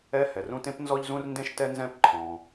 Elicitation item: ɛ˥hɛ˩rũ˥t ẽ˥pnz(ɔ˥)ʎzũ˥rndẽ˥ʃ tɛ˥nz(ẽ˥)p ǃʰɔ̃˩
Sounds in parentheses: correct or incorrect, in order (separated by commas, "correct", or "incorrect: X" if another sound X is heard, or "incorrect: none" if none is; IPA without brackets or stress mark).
correct, incorrect: ɛ̃˥